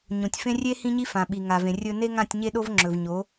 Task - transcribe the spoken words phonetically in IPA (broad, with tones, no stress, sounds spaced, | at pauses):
ɲ õ˨ tʲ f ẽ˦ rʲ e˦ h ĩ˦ ɲ i˦ f ã˨ ɓ i˨ ŋ a˨ v ẽ˨ rʲ ɵ˨ n e˦ ŋ ã˦˨ tʲ ɲ e˦ ɗ o˦ v ŋ͡ǁ ɵ˨ v ɲ o˨˦